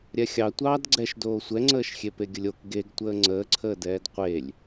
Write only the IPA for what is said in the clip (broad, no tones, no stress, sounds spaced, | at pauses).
ɾʲ ɛ xʲ ɑ tʷ ɑː d ɡ͡ǀ ɛ ʃ d oː sʷ ɛ ŋ͡ǀ əː ʃ xʲ e p e ɡʲ ə lʲ o k ɡ e ɡ tʷ əː ŋ͡ǀ əː ǀʰ əː d ɛː d qʷ e lʲ